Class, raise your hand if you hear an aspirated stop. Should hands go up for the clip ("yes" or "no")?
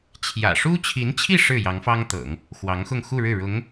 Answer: yes